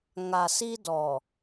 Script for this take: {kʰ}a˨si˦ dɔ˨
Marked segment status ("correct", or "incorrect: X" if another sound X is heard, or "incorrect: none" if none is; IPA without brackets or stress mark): incorrect: ŋ